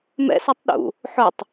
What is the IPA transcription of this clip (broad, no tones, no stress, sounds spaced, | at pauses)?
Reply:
m ɛ̰ s ɔ tˤ ɗ ṵ | ħ ʊ tˤ